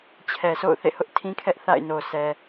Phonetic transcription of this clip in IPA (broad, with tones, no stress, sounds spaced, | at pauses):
t͡ɕʰ ɛ˨ sʰ o̰˦˨ ʊ̯ θ ḛ˦˨ h ʊ˦ ʔ tʰ ĩ˦ kʰ ɛ˦ ʔ θ a̰˦˨ ɪ̯ n o˨ s ɛ˨